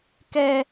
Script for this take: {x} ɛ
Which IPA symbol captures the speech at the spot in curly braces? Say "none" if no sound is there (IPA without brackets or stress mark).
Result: k